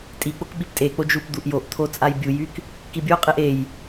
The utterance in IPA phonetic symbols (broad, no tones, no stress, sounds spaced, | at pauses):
tʼ i k͡p o k ɓ i p tʼ e k͡p o d͡ʒ u p d̪ u ʔ j o ʔ t̪ʰ o t͡sʼ a j bʲ u j y k | k i bʲ o qʼ e ʔ e j